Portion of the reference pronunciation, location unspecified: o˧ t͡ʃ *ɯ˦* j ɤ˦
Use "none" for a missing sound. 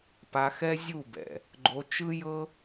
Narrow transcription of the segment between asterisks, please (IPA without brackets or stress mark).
ɯ˦